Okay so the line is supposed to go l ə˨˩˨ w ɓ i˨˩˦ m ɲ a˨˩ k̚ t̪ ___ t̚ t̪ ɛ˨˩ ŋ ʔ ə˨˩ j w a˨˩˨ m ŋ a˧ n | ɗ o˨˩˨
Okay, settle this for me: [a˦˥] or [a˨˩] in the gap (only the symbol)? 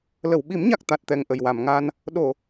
a˨˩